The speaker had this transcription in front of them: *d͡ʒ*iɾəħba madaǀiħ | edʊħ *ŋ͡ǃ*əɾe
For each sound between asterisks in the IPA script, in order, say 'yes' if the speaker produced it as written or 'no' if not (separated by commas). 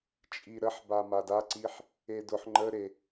no, yes